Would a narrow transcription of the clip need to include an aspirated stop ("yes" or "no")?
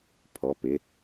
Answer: yes